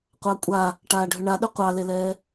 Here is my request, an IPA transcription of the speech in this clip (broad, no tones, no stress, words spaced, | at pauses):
qʷɑkʷʼa | ʈaːɖʱʏɳaɗʏ qʷɑlelɛː